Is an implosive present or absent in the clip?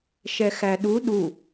present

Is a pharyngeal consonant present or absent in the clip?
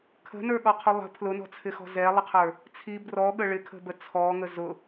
absent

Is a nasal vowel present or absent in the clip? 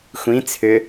present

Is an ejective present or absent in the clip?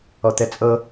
present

